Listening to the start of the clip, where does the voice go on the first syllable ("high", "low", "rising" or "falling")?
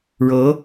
rising